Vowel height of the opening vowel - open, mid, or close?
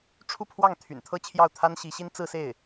close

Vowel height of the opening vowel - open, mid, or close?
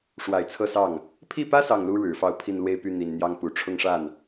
open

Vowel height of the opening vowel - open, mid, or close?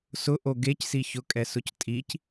close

